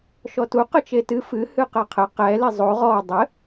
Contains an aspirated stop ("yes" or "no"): yes